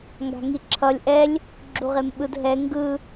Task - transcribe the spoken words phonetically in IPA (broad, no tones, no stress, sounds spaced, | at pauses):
ŋ ɡ a̤ ŋ i ǁʰ ʌ lʲ ʔ ɛ lʲ | ɡ͡ǁ u ʁ e m ɓ ɯ d ɦ ɛ ŋ ɡ ɯ